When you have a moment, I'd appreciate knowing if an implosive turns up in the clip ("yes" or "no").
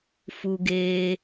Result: no